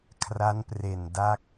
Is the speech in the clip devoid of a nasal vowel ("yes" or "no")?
yes